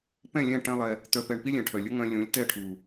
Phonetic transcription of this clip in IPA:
p ɛ̃˦˨ lʲ ɛ̃˦˨ ʈ ɛ̃˦ lˠ ɛ˧ | t̪ œ˧ p ɛ˧ ɳ p i˦ lʲ ɛ̃˨ ʈʰ œ˨ lʲ ɵ˦ ŋ œ̃˧ lʲ ũ˨˦ lʲ t ɛ˦˨ ʈʰ u˨

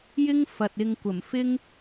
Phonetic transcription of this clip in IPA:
j ɪ˥ ŋ f ɐ˨ t̚ ɪ˧ ŋ kʷ ɐ˨˩ m f ɪ˥ ŋ

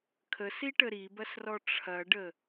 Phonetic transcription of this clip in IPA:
kʰ ə s i ʈ ə ɾ i b ɐ s r ɔ ʈ͡ʂʰ ɐ ɖ ə

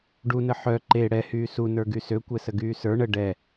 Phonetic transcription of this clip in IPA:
ɖ u n ə ħ œ ǃ e ɽ ɛ h yː s u n ə˞ ɡ y s ø kʷ ɛ s ə ɡ yː s ə˞ ɳ ə ɖ ɛ

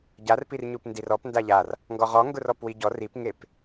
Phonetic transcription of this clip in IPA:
ɟ a r p i r ɲ u p n d i r ɔ p n d a ʎ a r | ŋ ɡ ɔ ʁ ɔ ŋ ɡ ʊ r ɔ p w i ɟ ɔ r i p ŋ e p

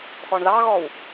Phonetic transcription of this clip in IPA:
x ɔ ɳ ð ɑ ɣ ɔ w

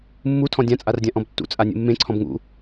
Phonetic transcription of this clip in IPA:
mː u tʰ ɔ̃ dʲ ã t͡sʼ a r dʲ ã ʔ ɔ̃ b tː ṵ t͡sʼ a nʲ ṵ mː ẽ ǀʰ ɔ̃ b ŋ ṵ

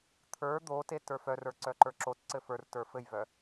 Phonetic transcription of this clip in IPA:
t̪ʰ ə˞ d̪ o t e t ə˞ f œ r ə˞ ǀ œ ǃ ə˞ ǁ o t ǀ ɘ f ə˞ r t ə˞ f ɘ j v œ

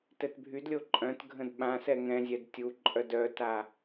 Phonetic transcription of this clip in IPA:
t ɛ t bʱ y d lʲ o ǃʼ œ̃ t ɡʱ ə̃ d ɓ ã s ɛ ŋ ɛ̃ zʲ ɛ d tʲ u ǃʼ œ d œ t a

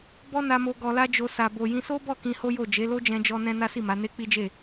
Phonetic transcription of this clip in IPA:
b ɔ˦ n a˧ m o˧ ɡ ɔ˧ l a˦ d͡ʒ o˧ s a˧ b o˧ j ĩ˧ s o˦ b ɔ˦˨ k ĩ˧ h o˦ j o˦˨ d͡ʒ e˨˦ l o˦ d͡ʒ ɛ̃˧ d͡ʒ ɔ˧ n ɛ̃˦ n a˦ s i˦˨ m a˨˦ n e˦ k͡p i˦ d͡ʒ e˦˨

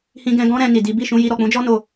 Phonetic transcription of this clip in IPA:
h ĩ˧ ɡ ɛ̃˧ ɡ ɔ̃˦ ɾ ɛ̃˧ n i˨ d i˨˦ b i˦˨ ʃ ũ˧ j i˧ ɾ ɔ˨ k͡p ũ˨˦ d͡ʒ ɔ˦ n o˦˨

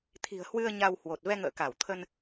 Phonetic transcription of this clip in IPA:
t̪ʰ i̤˨˩ ə̯ h w ɨ˧ ə̯ ɲ a˧ w h w o˨˩ t̚ v ɛ˧ ŋ ə̰ː˧˨ k a˧˩ w t̪ʰ ə˧ n

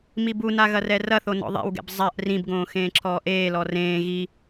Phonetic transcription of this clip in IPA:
m i b u n a ɣ ɐ r ɛ r ɐ θ o n ɔ̰ ðˤ ḛ w ɡ ɛ̰ b zˤ a ʔ r ĩ b ɡ õː x ẽː ǁʰ ɔː ʔ eː l ɔ r ẽː ɣ i

